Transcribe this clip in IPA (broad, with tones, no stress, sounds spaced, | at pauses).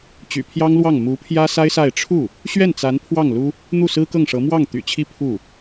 t͡ɕ y̰˨˩ pʰ j ɑ˥ ŋ l w ɑ˥˩ ŋ m u˧˥ pʰ j ä˥ s a˥ ɪ̯ s a˥˧ ɪ̯ ʈ͡ʂʰ u˥˩ | ɕ ɥ ɛ˥˩ n t͡s a˧˥ n pʰ w ɑ˥˩ ŋ l u˥ | n̪ u˥˩ s ɹ̩˥ k ɤ˥˩ ŋ ʂ ɤ˧˥ m w ɑ˥˩ ŋ t̪ y̰˨˩ t͡ɕʰ i˥˧ pʰ u˥˩